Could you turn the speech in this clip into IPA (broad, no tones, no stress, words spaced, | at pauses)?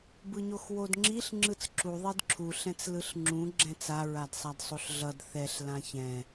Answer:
bɯɲoxwodŋ͡ǁiɬ ŋ͡ǁɯt͡sǁu ðˤidǁʰu ɬɛ̃t͡slɯɬŋ͡ǁũ ɡ͡ǁɛ̃t͡sa ɹadsˤadsˤoɬɮʌd θɛɬ lãçɛ̃